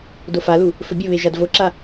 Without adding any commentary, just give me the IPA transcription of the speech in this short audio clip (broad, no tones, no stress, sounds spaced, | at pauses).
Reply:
d o f a l u | f ɵ bʲ ɵ β e ʒ a d v o ǁ a